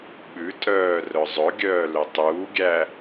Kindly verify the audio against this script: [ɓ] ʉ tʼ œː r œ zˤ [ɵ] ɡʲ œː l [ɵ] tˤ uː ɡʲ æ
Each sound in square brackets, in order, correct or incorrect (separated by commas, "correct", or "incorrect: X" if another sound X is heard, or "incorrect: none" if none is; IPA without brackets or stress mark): correct, correct, correct